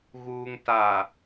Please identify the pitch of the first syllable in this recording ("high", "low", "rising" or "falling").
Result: low